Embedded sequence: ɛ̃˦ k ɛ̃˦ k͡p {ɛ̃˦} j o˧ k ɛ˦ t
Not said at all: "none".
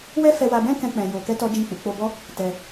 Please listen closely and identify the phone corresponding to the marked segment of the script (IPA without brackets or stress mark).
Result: ɛ̃˧